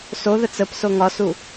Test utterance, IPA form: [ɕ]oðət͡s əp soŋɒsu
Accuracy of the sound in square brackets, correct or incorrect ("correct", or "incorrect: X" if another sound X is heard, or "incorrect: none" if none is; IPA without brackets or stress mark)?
incorrect: s